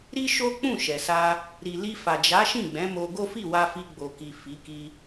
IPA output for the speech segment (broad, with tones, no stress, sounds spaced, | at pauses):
ɾ i˦ ʃ o˦ k͡p ũ˦˨ ʃ ɛ˨ s a˧ | ɾ i˨ l i˧ f a˨ d͡ʒ a˨˦ ʃ ĩ˦˨ ɡ͡b ɛ̃˨˦ m o˧ ɡ o˦ f i˦˨ w a˧ f i˧ ɡ͡b o˨ k i˨ f i˨˦ k i˧